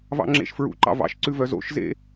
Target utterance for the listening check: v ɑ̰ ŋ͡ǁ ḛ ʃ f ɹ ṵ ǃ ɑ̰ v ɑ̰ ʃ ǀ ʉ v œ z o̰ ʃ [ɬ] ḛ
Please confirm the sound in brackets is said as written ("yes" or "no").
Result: no